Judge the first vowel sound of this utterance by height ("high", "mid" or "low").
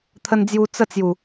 mid